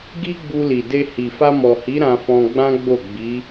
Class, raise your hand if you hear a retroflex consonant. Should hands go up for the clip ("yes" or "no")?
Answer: no